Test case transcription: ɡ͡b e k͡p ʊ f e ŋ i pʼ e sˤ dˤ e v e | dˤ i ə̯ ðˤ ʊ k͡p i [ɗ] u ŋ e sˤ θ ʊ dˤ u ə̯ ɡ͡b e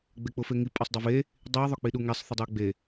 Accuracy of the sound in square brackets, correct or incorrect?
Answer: correct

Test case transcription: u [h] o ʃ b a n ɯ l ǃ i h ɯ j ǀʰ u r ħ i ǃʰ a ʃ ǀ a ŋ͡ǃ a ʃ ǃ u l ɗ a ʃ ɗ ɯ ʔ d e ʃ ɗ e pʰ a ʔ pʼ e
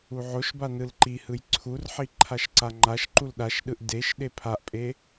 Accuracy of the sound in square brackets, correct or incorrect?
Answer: incorrect: ʕ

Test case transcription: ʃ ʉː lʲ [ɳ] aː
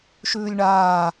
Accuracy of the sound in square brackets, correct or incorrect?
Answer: correct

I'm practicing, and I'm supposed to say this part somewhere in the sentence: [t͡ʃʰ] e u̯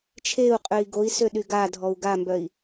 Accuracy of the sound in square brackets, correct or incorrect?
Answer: correct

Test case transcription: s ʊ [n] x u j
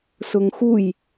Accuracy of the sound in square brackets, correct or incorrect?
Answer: incorrect: ŋ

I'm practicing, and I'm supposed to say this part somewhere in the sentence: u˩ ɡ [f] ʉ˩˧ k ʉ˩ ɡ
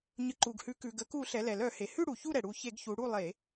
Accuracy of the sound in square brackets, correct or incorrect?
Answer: incorrect: h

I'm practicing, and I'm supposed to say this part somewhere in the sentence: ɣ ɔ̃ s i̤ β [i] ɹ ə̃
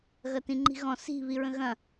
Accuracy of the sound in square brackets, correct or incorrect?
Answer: correct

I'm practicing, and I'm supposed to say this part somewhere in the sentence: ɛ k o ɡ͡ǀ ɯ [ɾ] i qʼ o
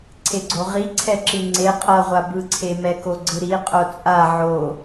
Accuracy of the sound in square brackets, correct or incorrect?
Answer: correct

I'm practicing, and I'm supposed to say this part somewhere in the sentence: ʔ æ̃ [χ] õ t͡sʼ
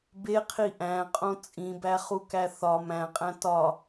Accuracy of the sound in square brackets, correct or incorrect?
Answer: incorrect: qʼ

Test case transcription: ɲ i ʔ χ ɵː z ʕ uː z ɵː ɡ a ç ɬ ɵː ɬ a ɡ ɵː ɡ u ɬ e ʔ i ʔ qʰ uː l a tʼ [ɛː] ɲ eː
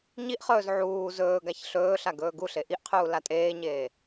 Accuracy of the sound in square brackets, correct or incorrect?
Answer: incorrect: eː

